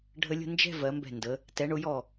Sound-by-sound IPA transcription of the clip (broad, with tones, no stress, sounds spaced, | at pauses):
ɖʱ ə˧ lʲ ə̤˥˧ n d͡ʒ ɛ̤˥˧ v ɜ˩˧ m b ɛ̤˧˩ n d ə˩˧ | t ɛ˩˧ ɳ ʊ˩˧ j ɔ˧˩